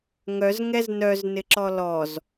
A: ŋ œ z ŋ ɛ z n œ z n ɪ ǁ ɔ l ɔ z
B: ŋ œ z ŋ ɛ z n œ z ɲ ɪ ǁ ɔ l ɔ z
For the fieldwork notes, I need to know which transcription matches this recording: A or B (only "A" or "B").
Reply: A